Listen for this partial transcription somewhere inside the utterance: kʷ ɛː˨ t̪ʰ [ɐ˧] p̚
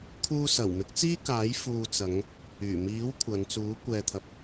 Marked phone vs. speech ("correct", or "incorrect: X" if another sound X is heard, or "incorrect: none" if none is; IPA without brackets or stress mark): incorrect: ɐ˨